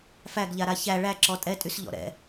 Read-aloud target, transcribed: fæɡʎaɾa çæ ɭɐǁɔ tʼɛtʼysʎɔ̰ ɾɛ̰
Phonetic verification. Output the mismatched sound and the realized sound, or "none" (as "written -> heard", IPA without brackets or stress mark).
ɐ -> æ